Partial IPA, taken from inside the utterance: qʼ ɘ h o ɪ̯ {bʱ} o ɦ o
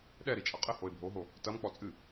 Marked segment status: correct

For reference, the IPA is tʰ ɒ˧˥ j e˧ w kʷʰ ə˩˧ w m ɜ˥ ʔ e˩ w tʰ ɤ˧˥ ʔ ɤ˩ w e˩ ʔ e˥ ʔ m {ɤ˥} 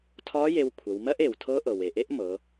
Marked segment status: incorrect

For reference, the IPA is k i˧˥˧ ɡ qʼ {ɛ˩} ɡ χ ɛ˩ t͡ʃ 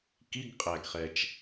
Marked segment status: incorrect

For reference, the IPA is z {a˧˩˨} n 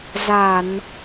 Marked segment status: correct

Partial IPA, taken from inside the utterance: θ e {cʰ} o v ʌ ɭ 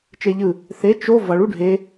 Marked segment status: incorrect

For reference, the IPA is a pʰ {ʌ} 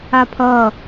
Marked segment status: correct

